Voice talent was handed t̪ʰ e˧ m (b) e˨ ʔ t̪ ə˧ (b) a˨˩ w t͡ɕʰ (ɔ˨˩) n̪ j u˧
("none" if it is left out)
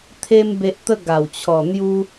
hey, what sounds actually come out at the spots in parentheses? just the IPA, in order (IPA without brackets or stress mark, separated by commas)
b, ɡ, ɔ˨˩